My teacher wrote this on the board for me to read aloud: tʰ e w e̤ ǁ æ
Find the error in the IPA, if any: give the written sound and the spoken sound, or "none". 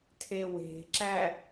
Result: none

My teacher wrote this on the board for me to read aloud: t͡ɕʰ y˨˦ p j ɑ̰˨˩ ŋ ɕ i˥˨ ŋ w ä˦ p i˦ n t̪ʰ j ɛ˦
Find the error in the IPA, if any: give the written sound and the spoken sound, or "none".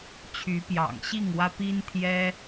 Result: none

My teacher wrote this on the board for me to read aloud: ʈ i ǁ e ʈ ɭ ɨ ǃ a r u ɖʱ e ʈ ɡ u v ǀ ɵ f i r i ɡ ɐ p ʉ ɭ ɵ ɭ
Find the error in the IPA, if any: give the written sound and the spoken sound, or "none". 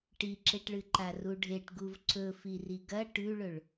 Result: p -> ʈ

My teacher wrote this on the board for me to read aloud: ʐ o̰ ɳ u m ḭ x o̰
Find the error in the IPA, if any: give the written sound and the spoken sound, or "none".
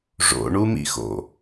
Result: none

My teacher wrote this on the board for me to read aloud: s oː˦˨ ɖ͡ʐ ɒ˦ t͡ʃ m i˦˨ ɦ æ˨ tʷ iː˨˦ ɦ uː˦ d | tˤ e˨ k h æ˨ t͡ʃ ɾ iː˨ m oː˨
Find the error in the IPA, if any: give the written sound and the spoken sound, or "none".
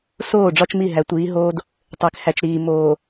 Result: uː˦ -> oː˦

